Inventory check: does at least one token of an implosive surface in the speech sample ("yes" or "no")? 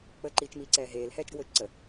no